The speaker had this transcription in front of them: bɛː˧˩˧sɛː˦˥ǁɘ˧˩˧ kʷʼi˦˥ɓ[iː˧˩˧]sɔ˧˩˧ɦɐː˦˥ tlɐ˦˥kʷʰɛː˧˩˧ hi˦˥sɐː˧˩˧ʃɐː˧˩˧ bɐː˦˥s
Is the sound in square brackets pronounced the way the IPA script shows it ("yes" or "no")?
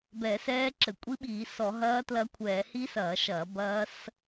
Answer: yes